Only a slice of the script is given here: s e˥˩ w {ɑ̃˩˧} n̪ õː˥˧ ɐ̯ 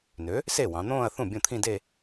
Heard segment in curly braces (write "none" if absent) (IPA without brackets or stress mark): ɑ̃˩˧